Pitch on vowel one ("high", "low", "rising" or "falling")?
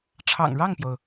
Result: low